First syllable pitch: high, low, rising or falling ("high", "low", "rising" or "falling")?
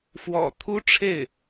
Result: low